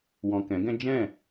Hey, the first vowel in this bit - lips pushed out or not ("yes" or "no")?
yes